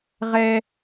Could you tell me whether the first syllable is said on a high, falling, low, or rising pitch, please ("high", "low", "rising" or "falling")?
high